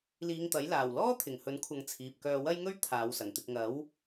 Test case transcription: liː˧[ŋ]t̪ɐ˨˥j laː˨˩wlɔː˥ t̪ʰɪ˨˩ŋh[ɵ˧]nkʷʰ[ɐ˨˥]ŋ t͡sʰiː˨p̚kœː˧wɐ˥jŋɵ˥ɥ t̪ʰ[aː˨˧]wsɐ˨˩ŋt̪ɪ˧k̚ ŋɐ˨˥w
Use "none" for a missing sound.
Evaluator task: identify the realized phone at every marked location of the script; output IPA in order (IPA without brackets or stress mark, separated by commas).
ŋ, ɵ˨˥, ɐ˨˧, aː˨˧